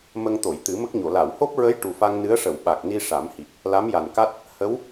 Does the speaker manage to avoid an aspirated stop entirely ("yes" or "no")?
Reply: yes